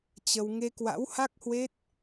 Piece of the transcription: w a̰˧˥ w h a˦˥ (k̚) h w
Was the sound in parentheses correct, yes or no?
yes